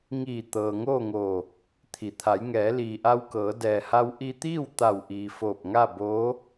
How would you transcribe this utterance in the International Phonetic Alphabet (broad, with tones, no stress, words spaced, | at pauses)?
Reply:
ŋiː˧˩ t̪ɤː˩ŋoː˥˨ŋoː˧˩ | t̪ʰi˩˧ t̪ʰa˩˧j ŋɛː˩˧liː˩ʔa˧wkɤː˩˧ dɛː˩ha˧w ʔi˧t̪iː˥˨w t̪a˧˩wʔiː˩ foː˧˩p̚ŋa˥˨boː˧˥